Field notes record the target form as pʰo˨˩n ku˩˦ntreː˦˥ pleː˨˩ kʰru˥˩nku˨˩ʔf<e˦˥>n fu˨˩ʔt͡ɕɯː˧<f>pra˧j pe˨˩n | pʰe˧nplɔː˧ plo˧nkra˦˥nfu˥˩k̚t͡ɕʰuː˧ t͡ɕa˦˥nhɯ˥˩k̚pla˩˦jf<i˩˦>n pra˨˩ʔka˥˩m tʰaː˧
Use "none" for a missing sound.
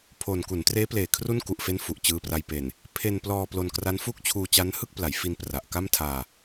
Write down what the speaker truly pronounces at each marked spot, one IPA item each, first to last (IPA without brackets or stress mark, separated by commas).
e˦˥, none, i˧